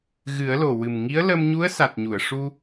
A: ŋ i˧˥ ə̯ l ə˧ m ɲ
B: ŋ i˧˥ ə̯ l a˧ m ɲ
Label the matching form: A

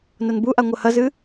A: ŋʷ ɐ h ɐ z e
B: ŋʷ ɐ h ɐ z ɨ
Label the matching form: B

